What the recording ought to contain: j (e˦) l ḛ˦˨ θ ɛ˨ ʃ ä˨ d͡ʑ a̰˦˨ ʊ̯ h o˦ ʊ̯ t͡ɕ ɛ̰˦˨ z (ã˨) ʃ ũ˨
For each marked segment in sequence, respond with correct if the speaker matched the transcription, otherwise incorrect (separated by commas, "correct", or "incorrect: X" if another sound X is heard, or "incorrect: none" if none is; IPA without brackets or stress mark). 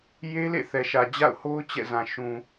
correct, correct